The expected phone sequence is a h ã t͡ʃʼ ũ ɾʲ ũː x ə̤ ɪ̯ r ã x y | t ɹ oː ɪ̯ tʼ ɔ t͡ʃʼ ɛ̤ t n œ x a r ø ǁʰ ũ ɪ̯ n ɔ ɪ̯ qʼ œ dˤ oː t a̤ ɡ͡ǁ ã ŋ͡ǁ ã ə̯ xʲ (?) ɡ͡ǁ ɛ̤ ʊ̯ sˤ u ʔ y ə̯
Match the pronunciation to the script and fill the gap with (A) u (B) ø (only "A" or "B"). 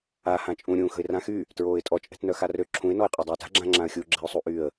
A